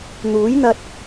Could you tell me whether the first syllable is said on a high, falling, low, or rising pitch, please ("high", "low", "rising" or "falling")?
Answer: rising